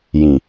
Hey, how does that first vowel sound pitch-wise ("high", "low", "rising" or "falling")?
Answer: low